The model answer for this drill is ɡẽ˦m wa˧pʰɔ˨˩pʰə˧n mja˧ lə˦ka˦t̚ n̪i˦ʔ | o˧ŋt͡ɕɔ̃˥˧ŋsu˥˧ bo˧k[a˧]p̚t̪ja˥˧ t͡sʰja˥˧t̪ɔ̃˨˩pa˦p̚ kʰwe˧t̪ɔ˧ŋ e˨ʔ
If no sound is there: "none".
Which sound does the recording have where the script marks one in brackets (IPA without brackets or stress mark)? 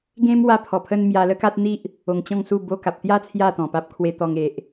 a˨